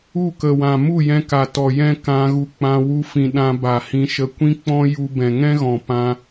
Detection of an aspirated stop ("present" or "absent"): absent